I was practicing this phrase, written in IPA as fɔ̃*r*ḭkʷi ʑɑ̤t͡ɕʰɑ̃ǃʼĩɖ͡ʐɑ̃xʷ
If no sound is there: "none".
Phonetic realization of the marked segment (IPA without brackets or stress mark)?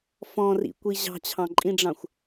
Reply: r